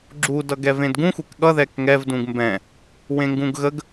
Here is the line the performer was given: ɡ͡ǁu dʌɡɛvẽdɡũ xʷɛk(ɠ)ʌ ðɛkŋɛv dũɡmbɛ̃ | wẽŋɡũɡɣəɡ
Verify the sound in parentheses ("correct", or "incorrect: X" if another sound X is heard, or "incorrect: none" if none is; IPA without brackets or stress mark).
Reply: correct